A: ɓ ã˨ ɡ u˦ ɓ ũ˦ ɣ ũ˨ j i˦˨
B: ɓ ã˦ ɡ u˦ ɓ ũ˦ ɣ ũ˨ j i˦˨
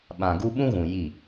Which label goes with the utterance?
A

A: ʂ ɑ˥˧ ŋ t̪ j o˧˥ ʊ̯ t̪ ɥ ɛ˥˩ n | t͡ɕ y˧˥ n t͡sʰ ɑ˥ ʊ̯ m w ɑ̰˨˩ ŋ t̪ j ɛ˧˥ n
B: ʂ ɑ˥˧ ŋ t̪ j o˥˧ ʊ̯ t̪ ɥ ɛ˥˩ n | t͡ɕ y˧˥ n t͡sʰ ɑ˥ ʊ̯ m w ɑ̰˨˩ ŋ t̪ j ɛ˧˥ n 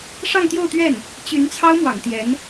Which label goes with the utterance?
B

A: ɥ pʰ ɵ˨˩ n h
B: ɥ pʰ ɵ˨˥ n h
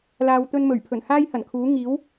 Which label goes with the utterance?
A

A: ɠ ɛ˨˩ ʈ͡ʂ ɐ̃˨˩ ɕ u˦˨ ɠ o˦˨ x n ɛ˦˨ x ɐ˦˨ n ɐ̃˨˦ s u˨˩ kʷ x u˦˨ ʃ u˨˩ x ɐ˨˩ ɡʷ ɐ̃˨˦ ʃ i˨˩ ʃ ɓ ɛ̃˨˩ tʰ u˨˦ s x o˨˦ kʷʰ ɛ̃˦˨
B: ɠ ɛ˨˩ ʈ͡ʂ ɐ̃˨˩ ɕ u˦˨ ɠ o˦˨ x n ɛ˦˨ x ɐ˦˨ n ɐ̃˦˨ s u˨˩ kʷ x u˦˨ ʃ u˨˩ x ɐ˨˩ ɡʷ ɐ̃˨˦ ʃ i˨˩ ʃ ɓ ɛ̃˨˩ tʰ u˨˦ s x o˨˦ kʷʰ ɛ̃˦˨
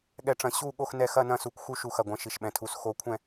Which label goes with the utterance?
B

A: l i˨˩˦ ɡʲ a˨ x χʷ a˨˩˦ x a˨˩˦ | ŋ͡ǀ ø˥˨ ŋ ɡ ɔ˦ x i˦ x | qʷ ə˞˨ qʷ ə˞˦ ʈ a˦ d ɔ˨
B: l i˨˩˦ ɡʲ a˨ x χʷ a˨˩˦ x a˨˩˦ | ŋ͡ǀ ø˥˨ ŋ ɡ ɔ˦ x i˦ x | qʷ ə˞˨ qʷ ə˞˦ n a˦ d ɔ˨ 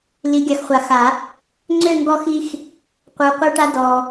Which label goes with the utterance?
A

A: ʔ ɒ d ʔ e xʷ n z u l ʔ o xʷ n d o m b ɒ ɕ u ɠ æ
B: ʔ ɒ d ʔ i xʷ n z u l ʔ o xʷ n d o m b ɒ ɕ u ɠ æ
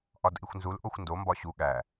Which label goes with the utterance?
B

